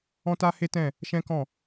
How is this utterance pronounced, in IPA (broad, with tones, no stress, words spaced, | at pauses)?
ɔ̃˦ta˦he˦tɛ̃˦˨ | ʃɛ̃˦kɔ̃˦˨